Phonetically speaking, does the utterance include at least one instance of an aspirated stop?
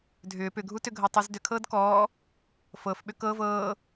yes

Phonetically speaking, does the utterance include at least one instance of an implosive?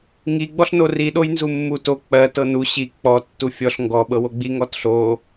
yes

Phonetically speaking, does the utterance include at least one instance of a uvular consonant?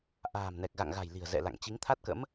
no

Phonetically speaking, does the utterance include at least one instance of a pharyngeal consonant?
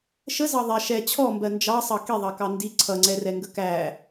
no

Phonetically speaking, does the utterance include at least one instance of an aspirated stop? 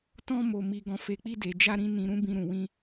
no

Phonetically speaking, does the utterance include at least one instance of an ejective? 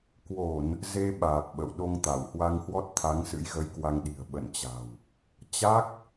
no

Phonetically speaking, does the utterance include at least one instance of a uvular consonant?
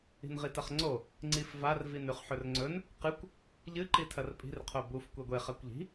yes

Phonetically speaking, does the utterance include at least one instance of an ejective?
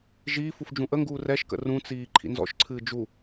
no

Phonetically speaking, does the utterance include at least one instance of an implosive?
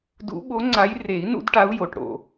yes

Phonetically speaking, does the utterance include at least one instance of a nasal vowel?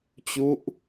no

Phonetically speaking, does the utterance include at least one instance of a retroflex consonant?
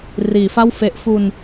no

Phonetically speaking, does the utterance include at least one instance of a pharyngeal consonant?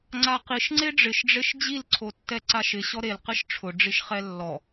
no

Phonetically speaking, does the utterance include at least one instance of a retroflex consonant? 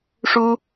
yes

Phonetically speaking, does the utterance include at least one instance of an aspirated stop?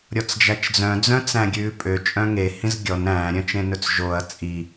no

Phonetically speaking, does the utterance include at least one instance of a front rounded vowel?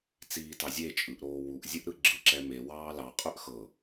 yes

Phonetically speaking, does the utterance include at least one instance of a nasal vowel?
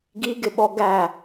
no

